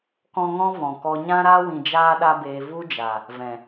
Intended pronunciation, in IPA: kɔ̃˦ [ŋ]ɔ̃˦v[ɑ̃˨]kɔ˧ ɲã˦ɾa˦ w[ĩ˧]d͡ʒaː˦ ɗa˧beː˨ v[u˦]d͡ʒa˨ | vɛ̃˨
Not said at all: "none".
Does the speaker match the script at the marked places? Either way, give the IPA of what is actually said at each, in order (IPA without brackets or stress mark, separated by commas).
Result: ŋ, ɔ̃˨, ĩ˧, u˦